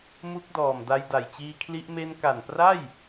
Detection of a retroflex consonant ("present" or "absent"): absent